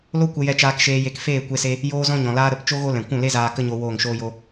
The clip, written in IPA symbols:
l o˦ kʷ ə˧ j ɛ˧ t͡ʃ aː˧ k ʃ eː˧ j e˧ k f eː˦˨ kʷ e˧ s e˧ | j oː˦ z ɔ̃˦ ɲ ɔ̃˨ l aː˦ ɾ ə˨˦ p t͡ʃ o˦ ɣ o˦ l ɛ̃˨ kʷ ũ˦˨ l e˦ z aː˧ k ə˦ ɲ o˧ w oː˦˨ ŋ ʃ oː˦ j o˦

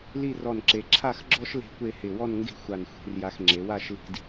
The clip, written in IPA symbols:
l i˥˧ r ɔ˧˩ n ǁ e˩˧ ǁʰ a˥˧ x ɡ͡ǁ ɔ˥ ʃ l e̤˥˧ kʷ e˥˧ h ɪ˧˩ w ɔ˥˧ n ŋ ɡ e̤˥˧ xʷ a˧˩ n xʷ e̤˩˧ r j a˧ x ŋ͡ǁ e˩˧ w a˥˧ ʃ l i̤˧ d

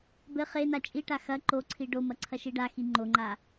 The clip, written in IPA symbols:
b ɘ χ e n a t͡ʃʼ i ʈ a x ɐ ǃ o ǀʰ i ɖ o m ɐ ǀʰ ɐ ʃ i ɖ a x i ŋ͡ǃ o ŋ͡ǃ a

